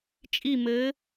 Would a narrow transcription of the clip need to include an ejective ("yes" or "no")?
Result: yes